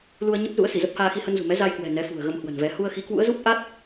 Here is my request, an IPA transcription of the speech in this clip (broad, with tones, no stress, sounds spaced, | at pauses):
l u˧ ə̯ ɲ ə˦˥ p̚ z ṵ˧˥ ə̯ s i˧˩ z ə˦˥ p̚ h aː˧ x i˧ h ə˧ n z ṳ˨˩ m ɛ˨˦ z a˧ j k w ɛ̤˨˩ n ɛ˨˦ f ṳ˨˩ ə̯ ɣ ə˧ m h w ə̤˨˩ n v ɛ˨˦ h u˧ ə̯ x i˨˦ k w ṵ˧˥ ə̯ z u˦˥ p̚ ʔ a˦˥ t̚